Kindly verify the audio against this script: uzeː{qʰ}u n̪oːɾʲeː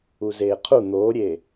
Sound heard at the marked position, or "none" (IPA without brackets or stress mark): qʰ